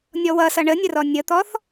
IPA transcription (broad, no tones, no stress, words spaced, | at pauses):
nʲɔwʌsʌ ɳənʲərɔ nʲət̪ɔθ